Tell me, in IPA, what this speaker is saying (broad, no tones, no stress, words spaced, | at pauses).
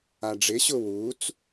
aɖ͡ʐɪɕʊ wut͡s